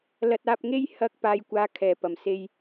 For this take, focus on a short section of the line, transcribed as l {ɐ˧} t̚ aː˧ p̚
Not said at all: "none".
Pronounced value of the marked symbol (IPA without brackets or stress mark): ɐ˧